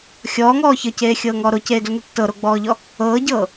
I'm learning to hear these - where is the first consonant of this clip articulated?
velum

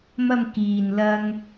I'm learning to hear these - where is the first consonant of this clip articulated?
lips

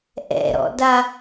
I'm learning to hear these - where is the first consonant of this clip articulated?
throat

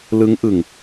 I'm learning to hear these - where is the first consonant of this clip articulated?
tongue tip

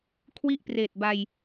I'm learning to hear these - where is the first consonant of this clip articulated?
velum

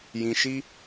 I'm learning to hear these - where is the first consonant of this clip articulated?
palate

